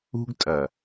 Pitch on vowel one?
high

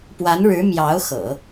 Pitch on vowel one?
rising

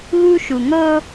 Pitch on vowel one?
high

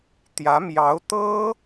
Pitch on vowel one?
rising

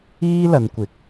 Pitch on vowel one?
high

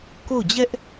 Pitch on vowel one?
falling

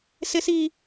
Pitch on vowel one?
high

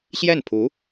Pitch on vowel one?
falling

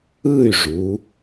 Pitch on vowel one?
falling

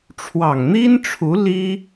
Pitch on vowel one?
low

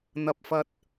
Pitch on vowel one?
high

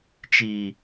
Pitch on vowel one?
low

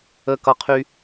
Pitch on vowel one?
low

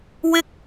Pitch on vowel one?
high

